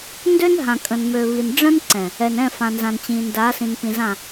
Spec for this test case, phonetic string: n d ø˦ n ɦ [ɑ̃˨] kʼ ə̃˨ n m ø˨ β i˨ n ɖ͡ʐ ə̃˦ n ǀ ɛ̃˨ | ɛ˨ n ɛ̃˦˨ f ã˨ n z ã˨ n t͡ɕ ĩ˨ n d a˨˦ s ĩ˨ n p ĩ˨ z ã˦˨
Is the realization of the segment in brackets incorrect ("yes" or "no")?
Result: yes